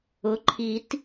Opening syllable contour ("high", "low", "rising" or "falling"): rising